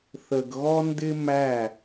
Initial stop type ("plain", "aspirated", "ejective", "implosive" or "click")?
plain